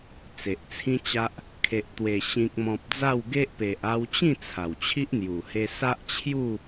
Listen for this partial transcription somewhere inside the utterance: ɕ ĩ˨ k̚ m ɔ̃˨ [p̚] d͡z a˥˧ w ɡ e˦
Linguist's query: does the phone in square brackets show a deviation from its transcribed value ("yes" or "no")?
no